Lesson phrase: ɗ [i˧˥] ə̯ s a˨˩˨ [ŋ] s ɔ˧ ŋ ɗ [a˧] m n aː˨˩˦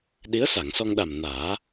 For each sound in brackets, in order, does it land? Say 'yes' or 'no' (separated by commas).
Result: yes, yes, no